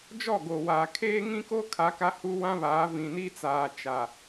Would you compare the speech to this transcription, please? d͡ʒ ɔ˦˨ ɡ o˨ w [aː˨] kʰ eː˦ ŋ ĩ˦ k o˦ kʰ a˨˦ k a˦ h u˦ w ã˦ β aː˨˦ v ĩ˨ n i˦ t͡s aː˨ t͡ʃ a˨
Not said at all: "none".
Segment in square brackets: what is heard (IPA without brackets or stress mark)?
aː˨